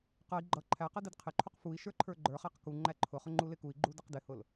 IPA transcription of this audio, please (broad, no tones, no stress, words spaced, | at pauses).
qʌi̯ ɡ͡ǃʌ ǃʰæqʌ dɪdqʰɪǃʰuq fui̯ ʃə˞ǃʰə˞ɡ͡ǃə˞χæq ku ŋ͡ǃæǃʰʊχʊ ŋ͡ǃulɪkui̯ɡ͡ǃu dəqdɪhʊl